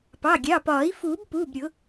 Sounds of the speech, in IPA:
pɑ˩˧˩ɡʲɑ˩˧˩pɒː˨˩˦i̯ fuː˨˩˦bpuː˩˧˩bɾʲʊ˨˩˦

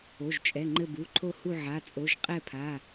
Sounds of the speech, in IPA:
o˩˧˩ʒt͡ʃʼɛ˩˧˩ ŋ͡ǃɘ˦˨bu˩˧˩ǃʰo˦˨hu˦˨ ʕa˩˧˩t͡sʼo˩˧˩ʒ qʼɛ˦˨pʰa˩˧˩

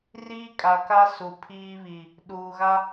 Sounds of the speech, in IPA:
riː˦kʼa˨ka˦ su˨pʰiː˦βi˨ | ɗuː˨ɣa˦

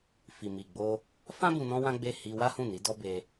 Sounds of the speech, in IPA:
fi˨ mi˨ɡ͡bo˧ | fã˦ bũ˧nɔ̃˦wã˦ɡ͡be˦˨ hi˧ wa˦hũ˦˨ni˨˦ dɔ˦be˧

